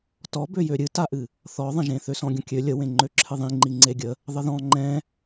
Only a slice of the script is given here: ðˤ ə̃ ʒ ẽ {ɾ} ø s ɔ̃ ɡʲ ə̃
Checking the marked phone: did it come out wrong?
yes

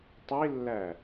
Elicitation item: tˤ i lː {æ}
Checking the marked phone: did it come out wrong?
no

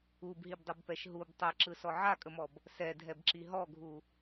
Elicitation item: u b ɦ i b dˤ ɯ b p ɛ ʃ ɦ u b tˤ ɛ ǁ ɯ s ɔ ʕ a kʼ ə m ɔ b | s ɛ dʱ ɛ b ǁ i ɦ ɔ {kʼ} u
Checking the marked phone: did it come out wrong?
yes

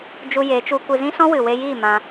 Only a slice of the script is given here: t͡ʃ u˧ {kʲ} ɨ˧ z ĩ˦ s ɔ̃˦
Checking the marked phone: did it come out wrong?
yes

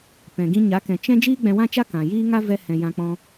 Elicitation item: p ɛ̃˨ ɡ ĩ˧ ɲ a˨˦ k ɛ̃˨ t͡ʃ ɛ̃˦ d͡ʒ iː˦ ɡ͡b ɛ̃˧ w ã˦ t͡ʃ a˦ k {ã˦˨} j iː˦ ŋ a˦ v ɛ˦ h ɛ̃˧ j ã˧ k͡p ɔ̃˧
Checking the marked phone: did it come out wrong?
yes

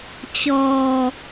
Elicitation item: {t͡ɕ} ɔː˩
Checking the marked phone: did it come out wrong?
no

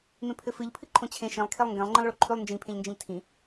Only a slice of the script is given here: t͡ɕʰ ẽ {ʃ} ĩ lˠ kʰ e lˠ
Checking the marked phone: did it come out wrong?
no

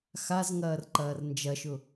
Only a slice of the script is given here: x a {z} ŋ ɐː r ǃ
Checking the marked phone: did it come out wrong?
no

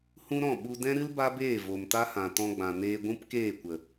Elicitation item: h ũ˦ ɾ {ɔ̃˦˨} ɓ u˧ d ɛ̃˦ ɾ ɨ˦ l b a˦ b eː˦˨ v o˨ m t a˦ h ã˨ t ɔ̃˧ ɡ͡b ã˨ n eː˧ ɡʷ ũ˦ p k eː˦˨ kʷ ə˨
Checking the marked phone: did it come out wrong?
no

